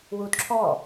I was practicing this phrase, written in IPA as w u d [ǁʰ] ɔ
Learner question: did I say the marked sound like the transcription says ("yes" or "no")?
yes